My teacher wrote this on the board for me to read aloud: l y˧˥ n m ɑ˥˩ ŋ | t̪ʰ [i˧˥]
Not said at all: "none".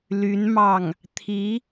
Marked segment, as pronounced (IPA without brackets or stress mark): i˧˥